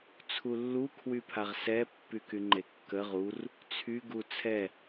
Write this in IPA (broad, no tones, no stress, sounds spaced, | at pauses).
t͡sʰ u lː u kʰ w y pʰ a ʁ s ɛ pː y k y ŋ͡ǃ e kː ə ʁ u r | t͡sʰ y ɡ u t͡sʰ ɛ